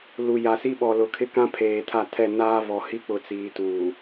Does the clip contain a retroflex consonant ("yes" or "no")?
no